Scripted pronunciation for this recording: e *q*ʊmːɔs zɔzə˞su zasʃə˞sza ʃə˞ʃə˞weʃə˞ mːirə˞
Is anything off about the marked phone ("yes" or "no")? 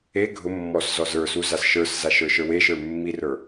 yes